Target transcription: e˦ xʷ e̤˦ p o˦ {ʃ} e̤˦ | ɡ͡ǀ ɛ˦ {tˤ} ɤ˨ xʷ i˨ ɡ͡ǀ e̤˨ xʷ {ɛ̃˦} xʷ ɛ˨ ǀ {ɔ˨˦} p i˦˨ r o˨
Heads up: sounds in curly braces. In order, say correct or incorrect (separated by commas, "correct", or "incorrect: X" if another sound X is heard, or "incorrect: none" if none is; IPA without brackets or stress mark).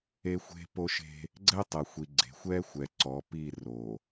correct, correct, incorrect: ɛ˦, correct